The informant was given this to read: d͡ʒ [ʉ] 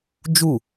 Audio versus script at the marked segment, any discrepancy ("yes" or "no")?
yes